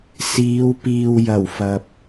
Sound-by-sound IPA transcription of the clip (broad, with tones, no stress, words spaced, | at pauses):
siː˨˧wpiː˨w jɐ˨˩wfɐ˨p̚